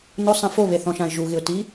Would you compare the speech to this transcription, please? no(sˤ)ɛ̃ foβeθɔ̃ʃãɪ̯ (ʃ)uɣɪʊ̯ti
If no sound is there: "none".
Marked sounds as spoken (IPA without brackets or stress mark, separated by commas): sˤ, ʒ